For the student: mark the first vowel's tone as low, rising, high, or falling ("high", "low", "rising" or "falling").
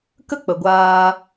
high